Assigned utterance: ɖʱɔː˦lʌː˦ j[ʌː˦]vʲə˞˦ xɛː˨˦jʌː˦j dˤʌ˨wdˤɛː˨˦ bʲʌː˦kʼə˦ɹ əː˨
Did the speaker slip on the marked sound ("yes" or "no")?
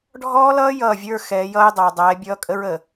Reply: yes